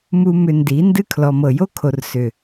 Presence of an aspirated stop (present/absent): present